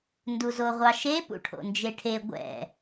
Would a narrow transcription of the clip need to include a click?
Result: no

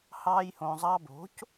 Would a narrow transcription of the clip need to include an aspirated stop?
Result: no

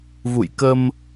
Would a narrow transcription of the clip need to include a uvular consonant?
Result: no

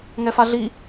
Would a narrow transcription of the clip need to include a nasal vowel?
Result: no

